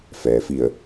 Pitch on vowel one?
low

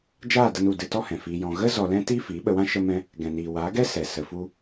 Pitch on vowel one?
falling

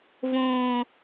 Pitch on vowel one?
high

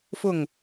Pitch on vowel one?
falling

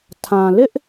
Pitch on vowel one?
low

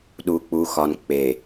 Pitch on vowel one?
low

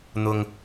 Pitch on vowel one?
low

